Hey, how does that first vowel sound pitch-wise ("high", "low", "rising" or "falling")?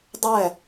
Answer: falling